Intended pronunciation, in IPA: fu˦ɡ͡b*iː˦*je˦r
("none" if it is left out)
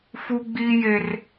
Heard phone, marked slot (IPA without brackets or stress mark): iː˦